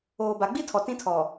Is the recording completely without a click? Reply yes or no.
yes